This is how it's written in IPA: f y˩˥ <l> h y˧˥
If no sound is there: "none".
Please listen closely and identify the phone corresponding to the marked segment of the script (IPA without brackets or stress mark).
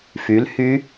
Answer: l